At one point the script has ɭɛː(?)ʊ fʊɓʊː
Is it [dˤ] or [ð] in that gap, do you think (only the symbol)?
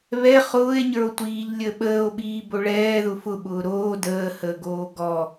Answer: ð